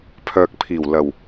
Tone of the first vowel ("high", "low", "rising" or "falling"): low